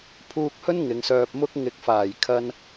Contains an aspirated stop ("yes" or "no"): yes